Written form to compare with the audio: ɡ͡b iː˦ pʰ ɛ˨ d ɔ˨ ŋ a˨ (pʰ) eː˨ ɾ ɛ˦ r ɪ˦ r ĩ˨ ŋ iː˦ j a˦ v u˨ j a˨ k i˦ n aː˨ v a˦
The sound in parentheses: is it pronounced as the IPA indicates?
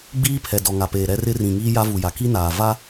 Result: no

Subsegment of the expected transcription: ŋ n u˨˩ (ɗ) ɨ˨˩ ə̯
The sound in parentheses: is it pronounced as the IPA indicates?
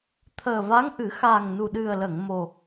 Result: yes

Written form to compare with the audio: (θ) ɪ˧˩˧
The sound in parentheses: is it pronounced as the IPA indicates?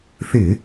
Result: yes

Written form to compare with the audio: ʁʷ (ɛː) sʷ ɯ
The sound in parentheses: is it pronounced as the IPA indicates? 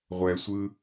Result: no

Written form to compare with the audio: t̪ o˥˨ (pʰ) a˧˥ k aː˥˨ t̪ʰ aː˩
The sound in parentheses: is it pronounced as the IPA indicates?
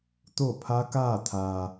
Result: yes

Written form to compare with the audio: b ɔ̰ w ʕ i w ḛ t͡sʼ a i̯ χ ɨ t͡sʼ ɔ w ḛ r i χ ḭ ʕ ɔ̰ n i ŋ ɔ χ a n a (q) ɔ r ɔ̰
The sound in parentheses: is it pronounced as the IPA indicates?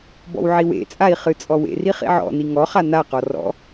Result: yes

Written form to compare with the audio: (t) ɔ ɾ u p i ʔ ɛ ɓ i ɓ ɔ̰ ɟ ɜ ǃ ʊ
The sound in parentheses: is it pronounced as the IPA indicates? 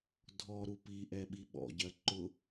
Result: no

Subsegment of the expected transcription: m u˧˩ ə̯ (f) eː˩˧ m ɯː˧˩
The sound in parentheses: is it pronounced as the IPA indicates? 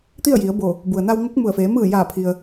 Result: yes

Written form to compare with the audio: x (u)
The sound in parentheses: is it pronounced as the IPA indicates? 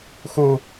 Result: yes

